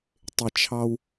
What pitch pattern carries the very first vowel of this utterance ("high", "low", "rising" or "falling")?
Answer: low